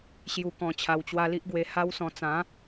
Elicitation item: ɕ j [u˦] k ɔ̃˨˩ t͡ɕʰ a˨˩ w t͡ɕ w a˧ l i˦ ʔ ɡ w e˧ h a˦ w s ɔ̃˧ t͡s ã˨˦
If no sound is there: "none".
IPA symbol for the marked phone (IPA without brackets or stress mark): u˨˩